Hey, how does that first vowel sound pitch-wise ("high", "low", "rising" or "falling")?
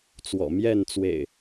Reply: low